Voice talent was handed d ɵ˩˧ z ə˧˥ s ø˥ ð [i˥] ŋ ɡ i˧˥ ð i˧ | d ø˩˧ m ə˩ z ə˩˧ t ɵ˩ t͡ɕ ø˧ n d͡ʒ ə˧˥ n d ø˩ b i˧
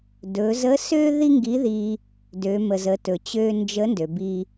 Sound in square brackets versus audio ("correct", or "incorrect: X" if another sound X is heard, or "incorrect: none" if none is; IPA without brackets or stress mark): correct